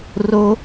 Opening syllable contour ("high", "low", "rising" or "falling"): high